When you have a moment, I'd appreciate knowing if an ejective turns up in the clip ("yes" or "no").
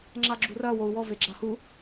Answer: no